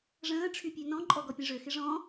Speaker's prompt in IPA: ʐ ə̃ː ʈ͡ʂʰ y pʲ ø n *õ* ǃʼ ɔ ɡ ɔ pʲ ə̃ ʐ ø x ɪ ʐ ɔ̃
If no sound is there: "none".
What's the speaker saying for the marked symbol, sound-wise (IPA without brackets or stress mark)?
ɔ̃